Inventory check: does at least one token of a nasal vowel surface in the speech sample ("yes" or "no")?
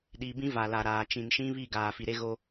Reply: yes